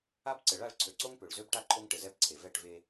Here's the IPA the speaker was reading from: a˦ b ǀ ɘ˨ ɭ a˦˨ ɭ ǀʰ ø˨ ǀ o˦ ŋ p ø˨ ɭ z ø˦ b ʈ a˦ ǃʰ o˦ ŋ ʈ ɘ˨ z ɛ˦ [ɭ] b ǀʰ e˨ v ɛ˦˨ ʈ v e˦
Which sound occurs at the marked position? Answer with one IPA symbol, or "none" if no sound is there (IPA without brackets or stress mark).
none